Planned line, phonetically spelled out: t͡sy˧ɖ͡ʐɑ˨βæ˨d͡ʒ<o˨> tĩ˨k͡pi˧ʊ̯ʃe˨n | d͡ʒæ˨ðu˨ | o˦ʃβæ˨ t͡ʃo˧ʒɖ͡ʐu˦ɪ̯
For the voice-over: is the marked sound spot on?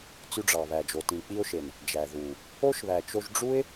yes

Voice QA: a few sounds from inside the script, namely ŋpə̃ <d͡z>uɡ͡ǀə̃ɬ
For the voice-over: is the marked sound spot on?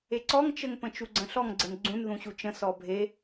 no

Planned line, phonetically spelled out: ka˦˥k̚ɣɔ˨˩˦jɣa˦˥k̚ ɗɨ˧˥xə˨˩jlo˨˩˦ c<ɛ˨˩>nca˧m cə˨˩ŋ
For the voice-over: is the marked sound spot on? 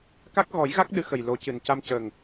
no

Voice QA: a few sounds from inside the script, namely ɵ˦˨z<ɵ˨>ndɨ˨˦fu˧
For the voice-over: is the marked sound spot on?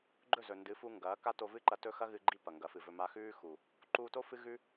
yes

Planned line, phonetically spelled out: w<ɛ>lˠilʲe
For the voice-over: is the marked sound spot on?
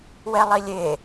yes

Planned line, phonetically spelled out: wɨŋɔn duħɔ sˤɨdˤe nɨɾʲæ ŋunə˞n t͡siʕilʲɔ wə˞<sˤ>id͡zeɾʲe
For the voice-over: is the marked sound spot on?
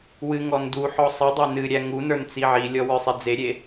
yes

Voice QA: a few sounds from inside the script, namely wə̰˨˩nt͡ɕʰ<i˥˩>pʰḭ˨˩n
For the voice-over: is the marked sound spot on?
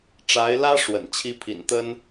no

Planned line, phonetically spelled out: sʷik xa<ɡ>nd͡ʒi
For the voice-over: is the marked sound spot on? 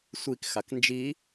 no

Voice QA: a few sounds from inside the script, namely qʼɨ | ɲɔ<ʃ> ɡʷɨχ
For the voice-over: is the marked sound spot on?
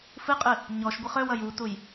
yes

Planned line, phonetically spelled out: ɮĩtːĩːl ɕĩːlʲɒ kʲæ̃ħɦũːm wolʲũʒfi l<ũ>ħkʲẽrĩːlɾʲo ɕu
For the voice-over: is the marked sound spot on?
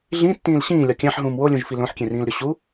no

